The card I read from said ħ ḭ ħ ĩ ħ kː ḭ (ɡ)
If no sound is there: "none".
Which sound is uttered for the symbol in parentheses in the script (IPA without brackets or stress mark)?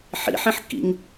ŋ